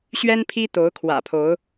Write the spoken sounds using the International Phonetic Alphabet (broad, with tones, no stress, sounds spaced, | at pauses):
ɕ ɥ ɛ˦ n pʰ i˦ t̪ o˨˦ ʊ̯ kʰ w ä̰˨˩ pʰ o˨˦ ʊ̯